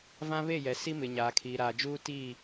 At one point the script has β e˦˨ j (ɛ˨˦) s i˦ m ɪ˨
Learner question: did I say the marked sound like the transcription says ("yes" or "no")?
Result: no